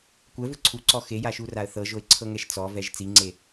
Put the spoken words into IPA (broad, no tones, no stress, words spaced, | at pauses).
kʷɛvɯ ǀʰuǀɔ xejaʃuraə̯ θɤʒoɪ̯ǀʰɤŋɛʃ t͡sɔvɛʒ t͡siŋ͡ǀe